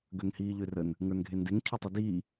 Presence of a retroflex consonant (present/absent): absent